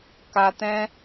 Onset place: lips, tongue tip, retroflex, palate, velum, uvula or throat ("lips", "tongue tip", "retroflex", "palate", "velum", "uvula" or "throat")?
velum